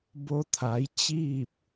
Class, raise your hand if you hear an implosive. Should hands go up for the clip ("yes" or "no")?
no